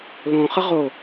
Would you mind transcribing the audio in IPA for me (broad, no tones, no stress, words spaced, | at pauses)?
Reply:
lõχə ʁo